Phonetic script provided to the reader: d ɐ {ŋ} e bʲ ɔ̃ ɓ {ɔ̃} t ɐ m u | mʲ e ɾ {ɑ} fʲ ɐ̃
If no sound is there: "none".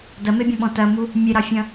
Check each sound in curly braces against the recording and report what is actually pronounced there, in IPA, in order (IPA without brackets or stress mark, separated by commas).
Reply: m, ɔ̃, ɑ